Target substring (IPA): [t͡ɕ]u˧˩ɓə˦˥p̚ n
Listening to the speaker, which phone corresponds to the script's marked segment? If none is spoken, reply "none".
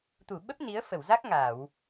t̪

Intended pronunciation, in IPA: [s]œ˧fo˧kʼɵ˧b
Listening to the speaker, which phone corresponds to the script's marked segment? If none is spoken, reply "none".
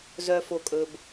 z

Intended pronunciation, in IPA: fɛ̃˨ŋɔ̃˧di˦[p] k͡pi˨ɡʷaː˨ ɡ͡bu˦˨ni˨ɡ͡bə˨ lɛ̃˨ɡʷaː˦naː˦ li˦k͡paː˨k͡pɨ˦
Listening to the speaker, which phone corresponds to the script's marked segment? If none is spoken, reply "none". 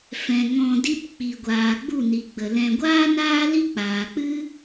p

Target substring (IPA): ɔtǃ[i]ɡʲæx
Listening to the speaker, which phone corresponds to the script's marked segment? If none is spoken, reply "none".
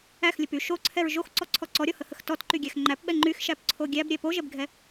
y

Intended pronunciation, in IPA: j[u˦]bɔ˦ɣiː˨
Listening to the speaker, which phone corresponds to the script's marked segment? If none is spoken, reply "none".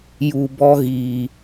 u˨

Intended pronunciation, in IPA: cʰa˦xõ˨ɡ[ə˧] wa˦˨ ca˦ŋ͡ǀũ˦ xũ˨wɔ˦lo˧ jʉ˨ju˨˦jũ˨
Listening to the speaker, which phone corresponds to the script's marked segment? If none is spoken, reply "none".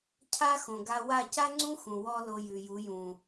a˧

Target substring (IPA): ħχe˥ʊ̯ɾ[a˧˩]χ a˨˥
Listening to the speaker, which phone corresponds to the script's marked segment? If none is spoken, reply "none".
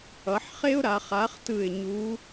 a˩˧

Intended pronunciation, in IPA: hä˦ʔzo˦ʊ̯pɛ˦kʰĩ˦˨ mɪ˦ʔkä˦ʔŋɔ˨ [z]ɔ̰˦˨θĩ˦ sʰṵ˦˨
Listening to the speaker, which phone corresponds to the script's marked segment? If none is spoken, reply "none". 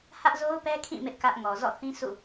z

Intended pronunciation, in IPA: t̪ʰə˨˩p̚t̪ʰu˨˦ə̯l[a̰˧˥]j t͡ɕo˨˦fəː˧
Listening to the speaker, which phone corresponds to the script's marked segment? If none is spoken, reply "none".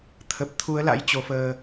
a̰˧˥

